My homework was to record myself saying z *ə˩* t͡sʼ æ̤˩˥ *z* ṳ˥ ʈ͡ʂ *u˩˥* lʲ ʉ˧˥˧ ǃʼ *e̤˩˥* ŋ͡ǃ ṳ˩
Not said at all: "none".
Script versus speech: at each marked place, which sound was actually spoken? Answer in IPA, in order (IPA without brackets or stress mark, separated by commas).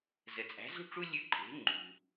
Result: ə˩, z, u˥, e̤˩˥